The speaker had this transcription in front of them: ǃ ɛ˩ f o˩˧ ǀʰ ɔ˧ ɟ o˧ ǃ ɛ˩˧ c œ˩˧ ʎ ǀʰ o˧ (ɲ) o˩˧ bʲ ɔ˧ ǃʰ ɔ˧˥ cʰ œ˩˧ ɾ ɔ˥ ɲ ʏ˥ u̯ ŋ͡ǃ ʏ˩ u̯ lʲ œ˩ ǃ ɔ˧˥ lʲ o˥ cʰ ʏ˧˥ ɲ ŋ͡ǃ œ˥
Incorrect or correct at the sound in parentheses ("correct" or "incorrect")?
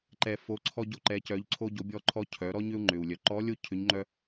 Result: incorrect